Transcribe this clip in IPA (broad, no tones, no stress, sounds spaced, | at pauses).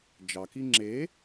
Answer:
d͡ʒ ɑ k i ŋ͡ǁ e